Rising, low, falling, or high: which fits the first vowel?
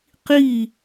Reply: falling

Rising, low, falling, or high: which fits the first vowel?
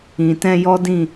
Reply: low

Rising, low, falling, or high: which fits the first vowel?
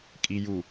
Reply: low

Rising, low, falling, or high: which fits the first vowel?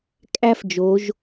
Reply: high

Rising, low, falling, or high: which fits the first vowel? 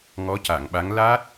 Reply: rising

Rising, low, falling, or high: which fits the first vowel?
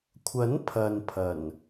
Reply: rising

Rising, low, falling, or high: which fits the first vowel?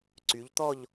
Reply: rising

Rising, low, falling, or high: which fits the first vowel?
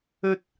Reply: high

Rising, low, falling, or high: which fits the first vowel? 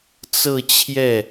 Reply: falling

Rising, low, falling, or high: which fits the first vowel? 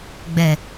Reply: low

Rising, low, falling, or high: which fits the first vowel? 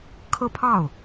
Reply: falling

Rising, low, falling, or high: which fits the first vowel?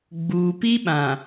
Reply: low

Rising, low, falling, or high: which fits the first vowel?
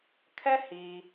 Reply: high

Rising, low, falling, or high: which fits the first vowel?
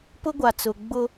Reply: high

